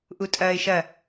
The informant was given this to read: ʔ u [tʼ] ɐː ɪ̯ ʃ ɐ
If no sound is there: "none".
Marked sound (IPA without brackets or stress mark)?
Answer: tʼ